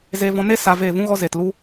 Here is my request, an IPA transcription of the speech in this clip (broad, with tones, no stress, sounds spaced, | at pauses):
z e˧ v ɔ̃˧ n e˦ s a˧ v eː˦˨ v ũ˧ ɣ ɔ˧ z e˨ t l u˦